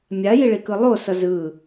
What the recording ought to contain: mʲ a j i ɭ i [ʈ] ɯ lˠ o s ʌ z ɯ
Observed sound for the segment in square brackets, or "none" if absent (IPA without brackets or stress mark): k